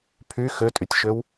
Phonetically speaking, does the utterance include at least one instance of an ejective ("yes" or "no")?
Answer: yes